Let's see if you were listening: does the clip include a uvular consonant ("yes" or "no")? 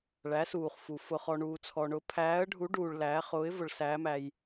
yes